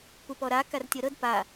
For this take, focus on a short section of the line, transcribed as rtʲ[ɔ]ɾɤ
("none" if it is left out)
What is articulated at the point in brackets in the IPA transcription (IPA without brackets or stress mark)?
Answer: ɤ